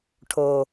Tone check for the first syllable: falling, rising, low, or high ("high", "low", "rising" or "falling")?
low